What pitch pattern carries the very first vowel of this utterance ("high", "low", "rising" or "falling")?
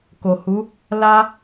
low